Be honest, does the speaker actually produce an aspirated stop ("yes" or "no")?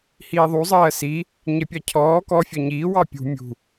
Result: yes